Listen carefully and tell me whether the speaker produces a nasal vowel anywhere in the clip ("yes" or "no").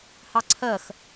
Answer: no